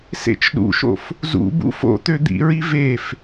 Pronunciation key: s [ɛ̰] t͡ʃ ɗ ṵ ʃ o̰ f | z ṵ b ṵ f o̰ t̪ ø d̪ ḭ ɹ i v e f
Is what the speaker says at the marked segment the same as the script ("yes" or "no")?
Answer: no